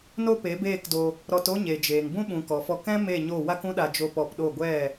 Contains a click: no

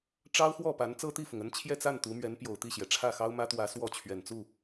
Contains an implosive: no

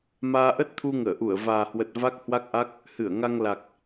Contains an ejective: no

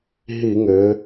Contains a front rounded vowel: yes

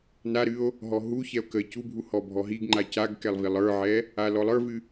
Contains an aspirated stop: no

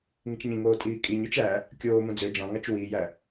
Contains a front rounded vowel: yes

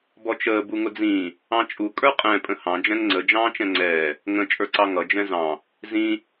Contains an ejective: yes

